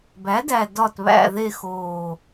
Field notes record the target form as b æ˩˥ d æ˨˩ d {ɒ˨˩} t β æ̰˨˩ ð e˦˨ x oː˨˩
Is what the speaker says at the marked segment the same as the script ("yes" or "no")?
yes